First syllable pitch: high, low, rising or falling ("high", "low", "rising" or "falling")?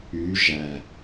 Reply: rising